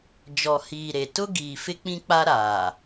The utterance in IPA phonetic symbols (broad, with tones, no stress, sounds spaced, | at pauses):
d͡ʒ ɔ˨ h iː˨ ɾ e˨ t ʊ˦ ɡ iː˨ f ɪ˦ k͡p ĩ˦ k͡p a˦ ɾ aː˨